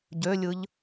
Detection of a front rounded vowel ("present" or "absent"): present